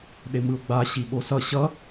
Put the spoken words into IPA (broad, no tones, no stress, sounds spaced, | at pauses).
ɗ e m ɯ ʊ̯ ɡ͡b a ɕ i ɓ o s ʌ ɕ ʌ